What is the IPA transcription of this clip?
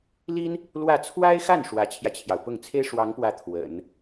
l i˥ n | l w ä˥˩ t͡sʰ w a˥ ɪ̯ x a˥˩ n ʂ w ä˧˥ t͡ɕʰ j ä˧ t͡ɕʰ j ɑ˩ ʊ̯ p ʊ˥˩ ŋ t͡sʰ e˥ ɪ̯ ʂ w ɑ˧˥ ŋ p w ä˧˥ t̪ʰ w ə̰˨˩˦ n

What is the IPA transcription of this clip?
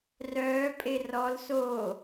r œː pʼ e r ɔ l s o

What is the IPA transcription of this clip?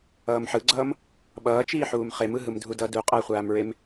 ʌː m ħ ɯ ɡ͡ǀ ʌː m | ɓ ʌː t͡ʃ iː ħ uː m χ e m ɯ ɦ ɯ m dʱ u d ʌ d u qʼ ʌː χʷ aː m ɹ e m

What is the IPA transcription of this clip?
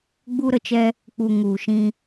ɡ͡b u˧ ɾ ə˨ t͡ʃ ɛ˧ | k͡p u˨ ŋ u˨ ʃ ĩ˧

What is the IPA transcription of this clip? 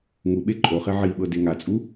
ŋ u ɓ e ǃʼ o χ e ʕ i ɓ ɤ d e ŋ a t͡sʼ u

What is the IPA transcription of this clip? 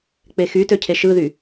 k͡p e x y t ø cʰ e ʃ ɯ ð y

